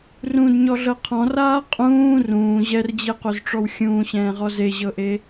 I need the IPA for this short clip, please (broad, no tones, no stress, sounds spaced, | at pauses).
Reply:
r ũ d ɲ ɔ ɮ ɤ qʰ ɔ̃ r aː qʼ ũː r ũː ʑ ɛ r d͡ʑ e q o z ʈ͡ʂ ɔ w xʲ ũː ɕ ɛ̃ː ʁ ɔ z e ʑ ɤ ʔ e